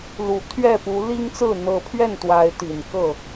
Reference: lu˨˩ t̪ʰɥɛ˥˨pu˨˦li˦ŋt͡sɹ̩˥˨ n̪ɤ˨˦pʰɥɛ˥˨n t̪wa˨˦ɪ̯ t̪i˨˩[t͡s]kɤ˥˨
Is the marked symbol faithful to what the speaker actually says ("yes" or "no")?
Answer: no